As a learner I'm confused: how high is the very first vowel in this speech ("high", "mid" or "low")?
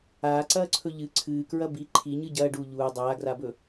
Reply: low